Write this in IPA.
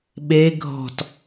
ɓ e ɡʱ ɔ̤ t

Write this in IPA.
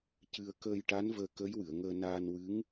c ɨ˧ ə̯ k əː˧ j ʈ a˧˥ n v əː˧ k ə˧˥ j w ɨ˨˩˨ ə̯ ŋ əː˧ n aː˧ n w ɨ˧˥ ŋ

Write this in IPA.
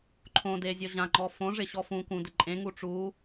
ǃʰ õ d e zʲ ɔ ʑ ã ŋ͡ǃ ɔ f õ ʐ ɪ ɕ ɔ f ũ k ũ d ɪ ǃʼ ẽ ŋ u ʈ͡ʂ u

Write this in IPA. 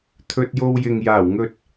t̪ʰ ɵ˧ t̚ j o˧ w j ɪ˨ ŋ j aː˨˩ w ŋ ɵ˧ t̚

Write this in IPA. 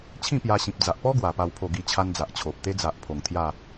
t͡ɕʰ ĩ˥˧ p j a˧ ɕ ĩ˨ p̚ d͡z a˨ ʔ p ɔ˦ ɡ w a˨˩ p a˥˧ w pʰ o˥˧ ɡ i˥˧ t͡ɕʰ a˦ n d͡z a˨ ʔ t͡ɕʰ o˨ p̚ t̪ e˦ d͡z a˨ ʔ pʰ o˨˩ ŋ t̪ʰ j a˥˧

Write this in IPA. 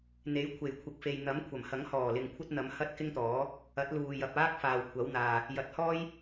n̪ e˨˥ j kʷʰ e˨˩ j kʷʰ ɪ˨ k̚ f e˨ j n̪ ɐ˨˥ m kʷʰ ɐ˨˩ m h ɐ˨˥ ŋ h ɔː˨˩ l ɪ˨ ŋ kʷʰ ɐ˥ t̚ n̪ ɐ˨˧ m h ɐ˥ t̚ k ɪ˥ ŋ t̪ ɔː˨˥ | ɐ˨˥ t̚ l uː˨ j ɐ˨ p̚ aː˥ k̚ f aː˨ w kʷʰ ɐ˨˥ w n̪ aː˨ | j ɐ˨˥ t̚ h ɔː˥ j

